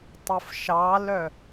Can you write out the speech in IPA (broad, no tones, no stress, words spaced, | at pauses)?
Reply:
tˤəfʃɑlœ